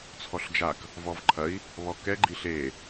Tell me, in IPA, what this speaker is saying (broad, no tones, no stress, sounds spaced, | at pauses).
t͡sʰ ɔ ɬ d͡ʒ a k | v ɔ v ǃʰ ɐ i̯ | β ɔ k ɛ ɡ͡ǃ i ɬ e